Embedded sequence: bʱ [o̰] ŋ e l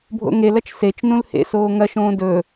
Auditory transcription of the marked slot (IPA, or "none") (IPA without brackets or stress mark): o̰